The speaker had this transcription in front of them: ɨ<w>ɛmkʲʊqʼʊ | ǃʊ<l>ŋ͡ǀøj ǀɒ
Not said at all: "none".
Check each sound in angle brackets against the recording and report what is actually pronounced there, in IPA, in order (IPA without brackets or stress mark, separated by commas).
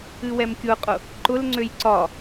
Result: w, l